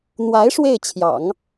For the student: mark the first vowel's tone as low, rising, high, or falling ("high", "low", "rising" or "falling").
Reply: rising